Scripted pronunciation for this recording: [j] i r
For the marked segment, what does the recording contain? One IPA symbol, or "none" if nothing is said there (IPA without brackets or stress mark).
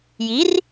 j